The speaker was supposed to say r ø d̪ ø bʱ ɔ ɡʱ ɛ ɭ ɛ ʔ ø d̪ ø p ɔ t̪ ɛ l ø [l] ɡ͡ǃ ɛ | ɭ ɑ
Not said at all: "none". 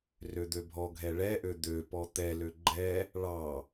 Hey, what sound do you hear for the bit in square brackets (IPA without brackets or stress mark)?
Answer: none